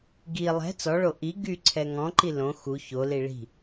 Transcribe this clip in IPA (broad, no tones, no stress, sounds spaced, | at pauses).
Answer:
ɡ i lˠ ɛ̤ t͡s ɔ ɭ o ʔ i ɡ y ǀʰ ɛ ŋ ɔ̃ ǃ i l õ x u ç o l i ɭ i̤